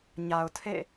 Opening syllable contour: low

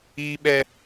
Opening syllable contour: high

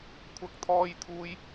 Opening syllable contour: high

